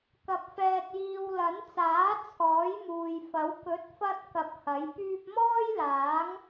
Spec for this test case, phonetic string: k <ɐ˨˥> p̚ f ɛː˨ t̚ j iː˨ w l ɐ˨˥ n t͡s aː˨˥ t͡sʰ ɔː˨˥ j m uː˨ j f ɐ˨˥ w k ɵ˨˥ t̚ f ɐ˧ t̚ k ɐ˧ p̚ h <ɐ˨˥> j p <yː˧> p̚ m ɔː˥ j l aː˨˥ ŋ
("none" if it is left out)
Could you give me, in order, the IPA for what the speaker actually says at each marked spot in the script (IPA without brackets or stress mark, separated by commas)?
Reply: ɐ˨, ɐ˨˥, yː˧